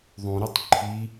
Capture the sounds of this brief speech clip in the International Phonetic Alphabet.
ðˤ ũ ɾ u tˤ ǃʰ i

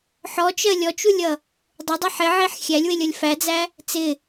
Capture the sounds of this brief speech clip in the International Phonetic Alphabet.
ħ ɔ t͡ʃ ɜ lʲ ɔ t͡ʃ u lʲ ʌ | dˤ ɪ dˤ ɛ ħ ɪ ʕ i ħ xʲ æ lʲ w ɪ lʲ ʌ lʲ f æ d͡z æ | t͡s ɪ

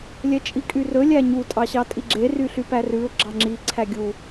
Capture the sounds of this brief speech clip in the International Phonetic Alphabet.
lʲ ɛ t͡ʃʼ i kʼ y r ɵ lʲ æ ɲ u tʼ ɑ ɕ ɑ tʼ i ɡ͡ǁ e r y ɬ y p æ r ʉ ʊ̯ ɡ͡ǁ ɑ ŋ͡ǁ i ǀʰ æ ɡʲ u

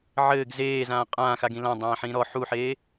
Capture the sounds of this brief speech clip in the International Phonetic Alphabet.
ʕ ɘː ɡ z eː z ãː qʼ ãː x a ɡ ĩ l ã dˤ ãː ħ ĩː ɾ ɔ ħ u ħ eː

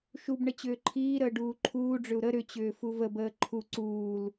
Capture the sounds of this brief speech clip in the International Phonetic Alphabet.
ʃ u b ɳ ə t͡ɕ ʏː ǃʰ iː ɾ əː ɖ uː ǃʰ uː ɖ͡ʐ ʏ u̯ ɾ ə ɾ ʏ t͡ɕ ʏː f u v ə b əː ǃʰ u ǀ uː l

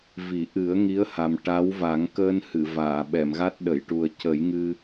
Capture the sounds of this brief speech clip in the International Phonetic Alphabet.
v i˨˩˦ ʔ ɨ˨˩˦ ə̯ ŋ i˧˥ ə̯ h a˨˩ m ʈ a˧˥ w v a˨˩˦ ŋ k əː˧ n h ɨ˨˩˨ v aː˨˩˨ ɓ ɛ˨˩˨ m ɣ a˦˥ t̚ ɗ ə˨˩˨ j ʈ u˨˩ ə̯ c ə˨˩˦ j ŋ ɨ˧

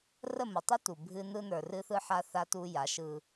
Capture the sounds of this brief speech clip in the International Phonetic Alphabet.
r ə˦˨ m ə˨ tˤ ʏ˦ t u˨ bʱ ɨ˦ n ɯ˦ n ə˞˨ r ɨ˦ θ ɯ˦ ħ a˦ θ a˦ t u˦ j a˨˦ ʃ ɯ˦

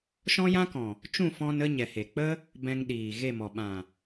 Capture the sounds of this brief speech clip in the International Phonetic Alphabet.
ʃ ɔ̃˦ j ã˦ k ɔ̃˨ | t͡ʃ ũ˦˨ f ɔ̃˧ n ə˦ ɲ ɛ˨ h e˨ k͡p ə˦ | b ɛ̃˧ ŋ ɗ iː˨ ɣ e˦˨ m ɔ˨ ɓ ã˨

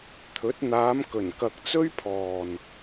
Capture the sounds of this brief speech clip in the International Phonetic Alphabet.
t̪ʰ ɵ˨˥ t̚ n̪ aː˨˧ m k ɵ˨˩ n k ɐ˨ k̚ t͡s ɵ˥ ɥ pʰ ɔː˨ n

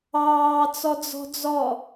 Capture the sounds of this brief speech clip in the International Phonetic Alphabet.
ɑː t͡s ɔ d͡z ɔ̤ d͡z ɔ

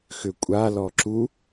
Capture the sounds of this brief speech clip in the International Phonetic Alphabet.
x ʏ kʷʼ a l ɔ ǁ u

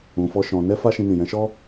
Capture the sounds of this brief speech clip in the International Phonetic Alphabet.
ũ˧ f ɔ˦ ʃ ɔ̃˧ n ɛ˦ f a˦ ʃ ĩ˧ n ĩ˨ j ɛ̃˨˦ ʃ ɔ˦

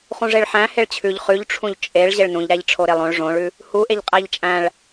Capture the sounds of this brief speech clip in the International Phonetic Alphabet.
χ ũ ʐ e ɭ ħ æ̃ h e ɭ t͡ɕʰ ʉ ʎ χ ʉ ʎ ʈ͡ʂʰ ũ ʎ t͡ʃʼ e ɭ ʑ e ɭ n ũ ʎ ɾ æ ʎ ʈ͡ʂʰ o ɾ e lˠ õ ɭ ʐ õ ɭ ʉ | h u ʔ e ʎ qʼ æ ʎ t͡ʃʼ æ̃ ɭ

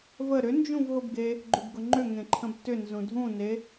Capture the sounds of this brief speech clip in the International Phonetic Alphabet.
v ə ɾ ʏ n d͡ʒ ũ v ɦ ʊ b ɡ e | ɡ͡ǃ ʏ b ɡ ʊ ŋ͡ǃ ʏ ŋ ẽ ǃʰ ə̃ b t ʏ n z ũ dʱ ũ n e

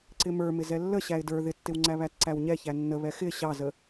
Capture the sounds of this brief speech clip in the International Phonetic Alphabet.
ǀ ɪ m ə˞ m ɪ z ɛ lː ə ɕ æ ɪ̯ d ə˞ ð ɪ tː ɪ w ŋ͡ǀ æ β æ t ǀ æ w ɲ ɛ ç æ nː ə β ɛ x ɪ ɕ ɑ z ə

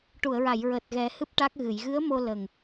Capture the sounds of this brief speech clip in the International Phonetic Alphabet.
ʈ u˨˩˨ ə̯ ɹ a˨˩˨ j ɹ əː˨˩ t̚ ɣ ɛ˨˩˦ h ɨ˦˥ p̚ ʈ a˦˥ k̚ ɣ ɨ˨˩˨ j ɣ ɨ˧˥ ə̯ m o˧ l ə˨˩ ŋ

